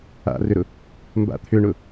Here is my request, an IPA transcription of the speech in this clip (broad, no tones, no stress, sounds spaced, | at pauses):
a̰ r ʏ ɾ ʊ | m b a̰ t̪ʰ ʏ ɳ ʊ